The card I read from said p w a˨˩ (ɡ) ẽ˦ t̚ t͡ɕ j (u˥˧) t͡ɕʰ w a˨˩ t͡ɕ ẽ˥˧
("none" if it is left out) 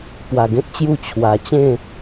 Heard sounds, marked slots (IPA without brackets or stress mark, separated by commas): ɡ, u˥˧